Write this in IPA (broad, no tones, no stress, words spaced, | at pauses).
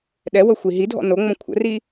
ɗɛwɤxʷi ɦidʱɔ̰ noŋ͡mõ kʷʰə̰ri